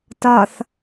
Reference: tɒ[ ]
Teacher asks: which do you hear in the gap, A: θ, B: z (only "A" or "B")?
A